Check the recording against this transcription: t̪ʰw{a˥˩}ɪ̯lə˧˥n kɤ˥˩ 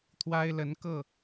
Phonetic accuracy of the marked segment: incorrect: a˥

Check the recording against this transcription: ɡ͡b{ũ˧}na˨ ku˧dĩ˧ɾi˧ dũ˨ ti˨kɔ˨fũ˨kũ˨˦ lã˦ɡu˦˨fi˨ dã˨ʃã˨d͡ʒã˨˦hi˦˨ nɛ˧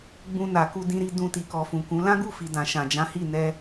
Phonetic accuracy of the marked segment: correct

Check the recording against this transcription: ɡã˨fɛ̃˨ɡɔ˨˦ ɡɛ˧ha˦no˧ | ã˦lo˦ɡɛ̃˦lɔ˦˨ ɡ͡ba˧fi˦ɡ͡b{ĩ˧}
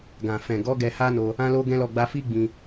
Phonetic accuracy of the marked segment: correct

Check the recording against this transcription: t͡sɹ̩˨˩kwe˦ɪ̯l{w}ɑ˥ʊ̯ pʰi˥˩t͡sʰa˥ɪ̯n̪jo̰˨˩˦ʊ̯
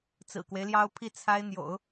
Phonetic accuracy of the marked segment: incorrect: j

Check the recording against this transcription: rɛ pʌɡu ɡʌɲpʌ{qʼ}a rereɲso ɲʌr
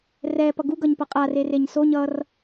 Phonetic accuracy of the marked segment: correct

